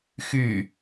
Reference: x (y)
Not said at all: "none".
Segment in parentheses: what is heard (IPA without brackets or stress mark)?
y